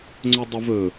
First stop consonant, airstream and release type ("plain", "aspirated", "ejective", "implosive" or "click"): click